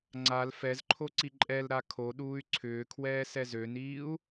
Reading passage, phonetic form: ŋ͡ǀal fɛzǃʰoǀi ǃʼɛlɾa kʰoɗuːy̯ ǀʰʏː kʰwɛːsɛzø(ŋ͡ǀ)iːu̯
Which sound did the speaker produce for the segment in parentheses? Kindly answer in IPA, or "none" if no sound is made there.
n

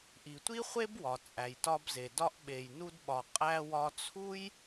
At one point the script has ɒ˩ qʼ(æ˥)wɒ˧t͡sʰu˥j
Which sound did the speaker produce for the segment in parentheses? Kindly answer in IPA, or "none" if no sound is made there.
æ˧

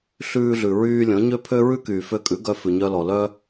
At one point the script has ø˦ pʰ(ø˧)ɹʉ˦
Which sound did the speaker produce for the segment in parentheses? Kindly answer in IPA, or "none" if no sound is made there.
ø˦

